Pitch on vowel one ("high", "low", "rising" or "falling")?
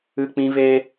low